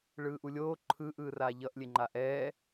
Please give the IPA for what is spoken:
ɭ ɯː ʔ u lʲ oː ǃʰ ɯ ʔ ɯː r aː ʎ ʌ ʔ lʲ e ŋ͡ǃ a ʔ ɛː

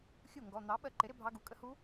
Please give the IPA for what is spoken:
xʲ u˥˩ ŋ ɡ ɔ˩˧˩ n̪ ɑ˩˥ ɓ ɜ˧ ǃ ɪ˩˥ ɾ ɪ˧ bʱ ɑ˧ ɡ u˩˧˩ kʼ ə˧ h u˧˥

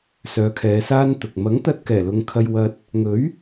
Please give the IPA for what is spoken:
s œː˨˧ kʰ ɛː˨˧ s aː˥ n t̪ ʊ˨ k̚ m ɐ˨˥ ŋ t̪ ɐ˧ t̚ k ɛː˨˩ l ʊ˨ ŋ kʰ ɐ˧ j w ɐ˧ t̚ | ŋ ɵ˨˥ ɥ

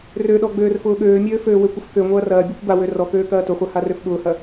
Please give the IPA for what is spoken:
r ø ɗ ɔ ɡ͡b øː r f ʊː ɠ øː mʲ øː f øː w ø kʷ ʏ f k ø ŋʷ ɐː r ɐː bʲ ø kʷ b a w ø r ɔ k øː k ɐː t ʊ χʷ a h a r ø f ɠ ʊː h ɐ

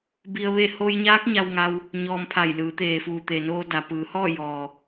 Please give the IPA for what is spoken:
b i˧ ə̯ ʋ e˥˨ h o˧ j ɲ aː˧˥ k̚ ɲ a˧ w ŋ a˧ w | ɲ ɔː˧ m pʰ a˧˩ j l ɯː˩˧ t̪ eː˩ f uː˩ t̪ e˩ n oː˧ d a˩ p ɯː˩˧ h ɔː˥˨ j ɔː˩

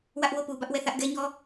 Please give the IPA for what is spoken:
w ä˦ ʔ w o˦˨ p u˨ b ä˦ ʔ w ɛ˦˨ θ ä˦ ʔ ɡ ɛ˦ ɲ ɔ˦

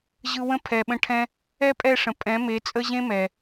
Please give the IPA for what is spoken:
ʑ ɯ˧ w ə̃˦ pʰ ɛ˨ ɓ ə̃˧ ʈʰ ɛ̃˦ | ɛ˦ pʼ ɛ˦˨ ʂ ə̃˨ pʼ ɛ̃˨˦ m e˨˦ t͡sʼ ə˦ ʑ ẽ˦ m ɛ˨

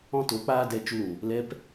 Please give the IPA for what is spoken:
ɔ̃˦ t o˨˦ k͡p aː˦ d ɛ˧ t͡ʃ u˧ l ũ˨ | l ɛ˧ p

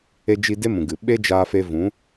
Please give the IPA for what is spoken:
e˧ d͡ʒ i˧ d e˦ m ũ˨ ɡ ɨ˨ ɓ e˦ d͡ʒ aː˧ f e˧ v ũ˨˦

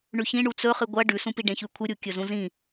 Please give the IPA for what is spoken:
ɳ ʉ ç ĩ ɳ u t͡s ɵ χ ɨ ɡʷ ɐ ɖ ʉ s ũ p i ɖ ẽ ç ʉ kʷʰ ɨ ɾʲ u kʲ ɵ z ũ z ĩ

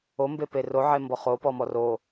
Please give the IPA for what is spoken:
o m b e p e r o ʕ e m b ɔ χ o p ɔ m ɔ r o

